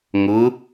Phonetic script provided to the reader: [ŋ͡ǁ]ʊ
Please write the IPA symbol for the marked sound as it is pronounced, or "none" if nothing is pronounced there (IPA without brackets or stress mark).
ŋ